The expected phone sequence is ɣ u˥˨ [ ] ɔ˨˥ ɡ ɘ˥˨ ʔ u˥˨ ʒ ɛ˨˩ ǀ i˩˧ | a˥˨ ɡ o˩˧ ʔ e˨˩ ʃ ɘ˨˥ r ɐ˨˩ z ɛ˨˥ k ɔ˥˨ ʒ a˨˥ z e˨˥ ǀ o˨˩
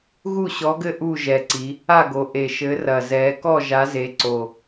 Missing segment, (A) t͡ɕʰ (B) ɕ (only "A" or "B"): B